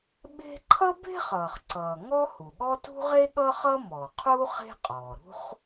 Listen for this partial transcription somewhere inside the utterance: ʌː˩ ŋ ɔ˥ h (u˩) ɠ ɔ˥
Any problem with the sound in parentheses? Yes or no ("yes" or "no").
no